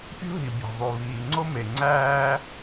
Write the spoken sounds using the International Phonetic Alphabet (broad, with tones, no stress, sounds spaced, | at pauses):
pʲ ṳ˦ ɦ i˩ bʲ æ̤˩ ðˤ u˩ β iː˩ ŋ͡ǀ o˦ m e˩ ŋ͡ǀ æː˦